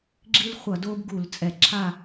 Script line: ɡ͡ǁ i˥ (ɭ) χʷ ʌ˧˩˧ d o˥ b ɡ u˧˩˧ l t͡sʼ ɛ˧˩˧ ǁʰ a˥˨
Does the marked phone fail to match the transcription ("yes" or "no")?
yes